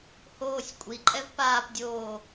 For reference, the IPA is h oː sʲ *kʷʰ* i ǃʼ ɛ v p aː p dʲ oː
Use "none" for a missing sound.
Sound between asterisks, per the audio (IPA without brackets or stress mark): kʷʼ